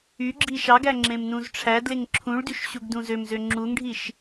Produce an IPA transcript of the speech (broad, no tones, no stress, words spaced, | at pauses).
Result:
y ɡ͡ǁiʃɑɡæ ŋ͡ǁẽmnũzʈ͡ʂʰædleŋ ǁʰũɭdyʃ ɕuɡdũzømzø ŋ͡ǁuŋɖʱiʃ